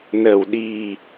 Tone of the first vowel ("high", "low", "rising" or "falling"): low